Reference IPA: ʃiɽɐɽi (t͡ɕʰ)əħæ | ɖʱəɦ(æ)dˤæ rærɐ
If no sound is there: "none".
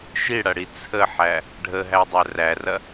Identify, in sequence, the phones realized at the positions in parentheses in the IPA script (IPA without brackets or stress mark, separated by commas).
t͡sʰ, æ